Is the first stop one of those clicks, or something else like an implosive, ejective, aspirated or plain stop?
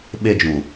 implosive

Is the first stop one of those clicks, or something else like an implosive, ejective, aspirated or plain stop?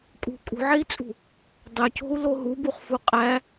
ejective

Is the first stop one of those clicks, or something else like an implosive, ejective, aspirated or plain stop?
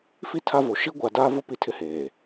aspirated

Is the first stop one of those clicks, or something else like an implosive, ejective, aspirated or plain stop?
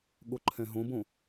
implosive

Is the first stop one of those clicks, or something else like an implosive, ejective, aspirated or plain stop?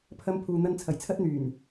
aspirated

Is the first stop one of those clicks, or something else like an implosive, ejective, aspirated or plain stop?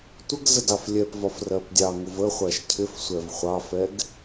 plain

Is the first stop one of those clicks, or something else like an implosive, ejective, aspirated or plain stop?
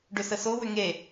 plain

